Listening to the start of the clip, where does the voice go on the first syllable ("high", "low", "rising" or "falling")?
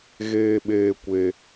low